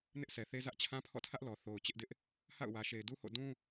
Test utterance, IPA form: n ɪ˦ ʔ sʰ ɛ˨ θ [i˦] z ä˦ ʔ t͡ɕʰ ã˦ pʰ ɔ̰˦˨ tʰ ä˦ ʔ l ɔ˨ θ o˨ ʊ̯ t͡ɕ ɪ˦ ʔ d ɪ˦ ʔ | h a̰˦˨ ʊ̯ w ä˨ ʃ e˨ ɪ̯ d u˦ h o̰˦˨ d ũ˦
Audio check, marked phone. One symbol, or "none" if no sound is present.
e˦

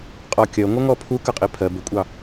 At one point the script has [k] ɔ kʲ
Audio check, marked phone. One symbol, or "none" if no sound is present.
qʼ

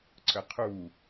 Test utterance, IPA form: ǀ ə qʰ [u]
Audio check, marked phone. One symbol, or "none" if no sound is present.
u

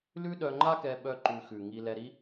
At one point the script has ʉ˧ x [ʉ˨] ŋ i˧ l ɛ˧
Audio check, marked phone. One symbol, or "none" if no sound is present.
ʉ˨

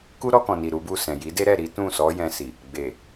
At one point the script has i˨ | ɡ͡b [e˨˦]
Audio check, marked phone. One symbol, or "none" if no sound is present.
e˨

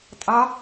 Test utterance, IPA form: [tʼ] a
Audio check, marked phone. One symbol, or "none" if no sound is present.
tʼ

